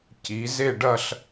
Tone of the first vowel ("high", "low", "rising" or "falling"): rising